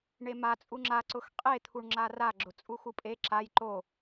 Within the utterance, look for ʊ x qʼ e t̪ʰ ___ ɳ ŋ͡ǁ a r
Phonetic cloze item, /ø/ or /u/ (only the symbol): u